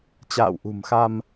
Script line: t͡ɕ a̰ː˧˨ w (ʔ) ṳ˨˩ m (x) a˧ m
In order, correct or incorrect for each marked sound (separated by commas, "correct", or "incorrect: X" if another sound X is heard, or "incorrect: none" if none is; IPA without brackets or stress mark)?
correct, correct